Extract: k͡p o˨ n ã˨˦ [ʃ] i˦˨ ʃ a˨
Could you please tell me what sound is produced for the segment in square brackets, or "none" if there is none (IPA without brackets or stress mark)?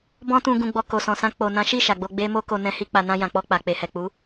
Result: ʃ